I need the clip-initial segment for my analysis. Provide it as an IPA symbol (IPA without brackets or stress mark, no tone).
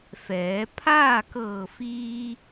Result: f